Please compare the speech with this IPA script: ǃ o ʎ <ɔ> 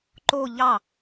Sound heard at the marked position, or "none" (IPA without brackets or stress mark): ɑ